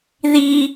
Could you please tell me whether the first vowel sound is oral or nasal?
oral